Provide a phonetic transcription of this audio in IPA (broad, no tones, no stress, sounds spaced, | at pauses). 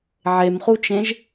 ʕ e m χ u t͡ʃ ẽ ʒ